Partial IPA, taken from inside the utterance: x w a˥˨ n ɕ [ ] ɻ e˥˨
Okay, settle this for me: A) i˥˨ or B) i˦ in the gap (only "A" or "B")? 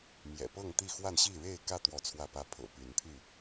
A